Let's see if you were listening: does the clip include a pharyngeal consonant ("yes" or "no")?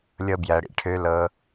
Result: no